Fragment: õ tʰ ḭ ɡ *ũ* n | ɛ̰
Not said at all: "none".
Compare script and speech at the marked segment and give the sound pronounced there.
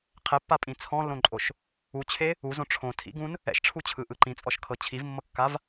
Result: ũ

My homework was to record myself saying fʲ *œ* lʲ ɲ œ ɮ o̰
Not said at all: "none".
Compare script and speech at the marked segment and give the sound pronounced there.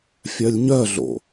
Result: œ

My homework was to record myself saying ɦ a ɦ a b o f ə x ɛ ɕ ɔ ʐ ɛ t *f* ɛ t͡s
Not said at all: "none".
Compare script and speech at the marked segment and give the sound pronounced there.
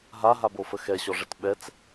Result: ɓ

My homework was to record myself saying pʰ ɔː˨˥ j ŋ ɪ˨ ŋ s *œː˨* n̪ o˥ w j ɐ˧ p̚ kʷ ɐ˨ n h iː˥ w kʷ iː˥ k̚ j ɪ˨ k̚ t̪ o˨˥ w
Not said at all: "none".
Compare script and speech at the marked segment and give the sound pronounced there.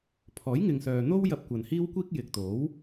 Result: œː˨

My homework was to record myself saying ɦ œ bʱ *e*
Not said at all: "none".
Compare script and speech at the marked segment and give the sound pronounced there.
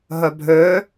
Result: ø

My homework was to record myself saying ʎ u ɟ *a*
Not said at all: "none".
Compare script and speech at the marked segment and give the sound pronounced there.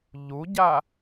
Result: a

